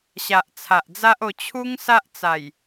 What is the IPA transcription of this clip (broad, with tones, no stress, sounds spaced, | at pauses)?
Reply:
ɕ a˨ ʔ t͡sʰ a˨ ʔ d͡z a˦ ʔ o˧ t͡ɕʰ u˦ ŋ s a˦ ʔ t͡s a˨˩ j